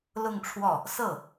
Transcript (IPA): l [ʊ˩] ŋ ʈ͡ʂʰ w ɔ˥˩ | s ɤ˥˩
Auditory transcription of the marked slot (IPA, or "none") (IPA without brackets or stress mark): ʊ˥˧